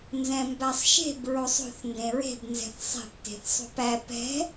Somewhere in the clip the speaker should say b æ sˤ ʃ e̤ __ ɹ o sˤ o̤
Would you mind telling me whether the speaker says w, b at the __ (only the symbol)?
b